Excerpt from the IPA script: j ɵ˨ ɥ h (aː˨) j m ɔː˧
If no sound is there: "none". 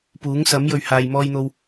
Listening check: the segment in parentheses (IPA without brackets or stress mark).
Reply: aː˨